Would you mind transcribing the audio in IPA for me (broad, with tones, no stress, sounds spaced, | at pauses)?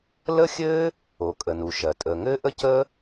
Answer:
l ə˥ xʲ ɘː˥ | o˩ kʼ ə˩ n u˩ ʃ ɜ˩ tʼ əː˩ ŋ ɘː˥ ʔ ə˥ c ə˥